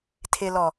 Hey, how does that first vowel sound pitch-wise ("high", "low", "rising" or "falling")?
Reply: low